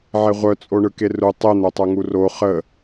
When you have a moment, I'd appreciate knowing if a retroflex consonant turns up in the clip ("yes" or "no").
yes